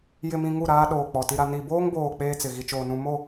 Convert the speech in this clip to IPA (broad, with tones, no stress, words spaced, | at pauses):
jɪ˨mĩ˨ ŋu˦˨ɾaː˦ ɗoː˨k͡pɔ˨ti˦ɾa˦ ni˨boː˦ŋboː˨ k͡peː˦t͡sɪ˨ ɣi˨t͡ʃoː˨nũ˨ mo˦˨